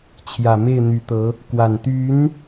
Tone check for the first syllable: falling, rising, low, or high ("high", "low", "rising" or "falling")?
low